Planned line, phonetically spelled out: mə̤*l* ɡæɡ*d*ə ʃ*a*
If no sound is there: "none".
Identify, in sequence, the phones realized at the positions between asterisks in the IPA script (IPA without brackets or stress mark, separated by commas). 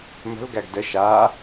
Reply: l, d, aː